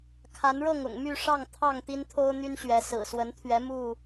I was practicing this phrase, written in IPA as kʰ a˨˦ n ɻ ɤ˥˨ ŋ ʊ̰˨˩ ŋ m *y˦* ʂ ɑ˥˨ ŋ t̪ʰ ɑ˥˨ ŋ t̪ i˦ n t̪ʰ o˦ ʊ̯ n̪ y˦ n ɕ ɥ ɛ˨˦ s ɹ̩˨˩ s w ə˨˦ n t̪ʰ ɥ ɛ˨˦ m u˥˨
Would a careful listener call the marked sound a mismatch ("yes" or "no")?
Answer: yes